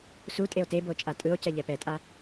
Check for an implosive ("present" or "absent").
absent